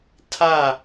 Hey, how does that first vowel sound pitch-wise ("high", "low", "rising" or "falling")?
falling